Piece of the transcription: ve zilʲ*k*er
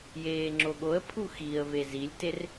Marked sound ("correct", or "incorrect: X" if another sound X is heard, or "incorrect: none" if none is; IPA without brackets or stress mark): incorrect: t